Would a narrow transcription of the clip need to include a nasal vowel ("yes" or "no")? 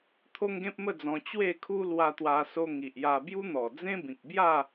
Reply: yes